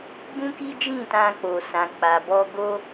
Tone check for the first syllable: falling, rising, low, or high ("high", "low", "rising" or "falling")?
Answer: high